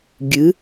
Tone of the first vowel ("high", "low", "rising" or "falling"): rising